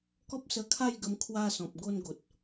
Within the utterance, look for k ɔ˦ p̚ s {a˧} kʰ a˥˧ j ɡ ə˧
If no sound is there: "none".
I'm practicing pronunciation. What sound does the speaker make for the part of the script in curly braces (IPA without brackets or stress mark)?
ə˧